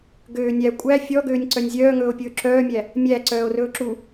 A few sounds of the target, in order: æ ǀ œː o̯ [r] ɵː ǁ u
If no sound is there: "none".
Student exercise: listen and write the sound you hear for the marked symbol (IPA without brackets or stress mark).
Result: r